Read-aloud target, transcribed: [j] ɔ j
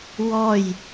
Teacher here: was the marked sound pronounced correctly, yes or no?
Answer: no